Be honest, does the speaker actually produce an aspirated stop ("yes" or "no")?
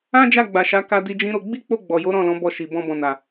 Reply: no